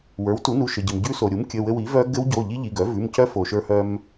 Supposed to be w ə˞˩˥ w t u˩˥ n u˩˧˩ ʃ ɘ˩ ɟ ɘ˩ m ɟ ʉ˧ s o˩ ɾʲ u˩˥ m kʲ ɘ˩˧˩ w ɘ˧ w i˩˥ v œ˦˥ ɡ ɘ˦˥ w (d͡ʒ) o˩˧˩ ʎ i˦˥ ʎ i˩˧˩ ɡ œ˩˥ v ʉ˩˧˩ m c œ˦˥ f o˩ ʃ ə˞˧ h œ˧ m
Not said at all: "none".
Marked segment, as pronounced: ɟ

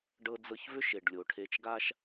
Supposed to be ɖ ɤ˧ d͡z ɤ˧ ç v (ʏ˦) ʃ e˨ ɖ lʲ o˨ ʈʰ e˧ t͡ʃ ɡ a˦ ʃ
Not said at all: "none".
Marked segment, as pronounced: ʏ˦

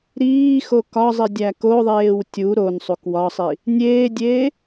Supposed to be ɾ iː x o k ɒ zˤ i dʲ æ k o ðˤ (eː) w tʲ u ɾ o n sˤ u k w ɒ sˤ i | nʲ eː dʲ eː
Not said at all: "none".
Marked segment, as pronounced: eː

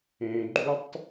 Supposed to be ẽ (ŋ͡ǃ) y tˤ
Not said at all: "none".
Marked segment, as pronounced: ɡ͡ǃ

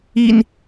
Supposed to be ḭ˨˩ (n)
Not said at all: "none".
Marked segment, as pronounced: n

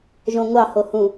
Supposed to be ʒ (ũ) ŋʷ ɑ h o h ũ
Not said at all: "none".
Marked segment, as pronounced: õ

